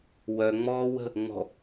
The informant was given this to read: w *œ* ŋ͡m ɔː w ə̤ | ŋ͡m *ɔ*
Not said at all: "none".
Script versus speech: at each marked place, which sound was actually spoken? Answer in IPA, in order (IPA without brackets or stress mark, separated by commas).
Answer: œ, ɔ̤